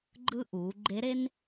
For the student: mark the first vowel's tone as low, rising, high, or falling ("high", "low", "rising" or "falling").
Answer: high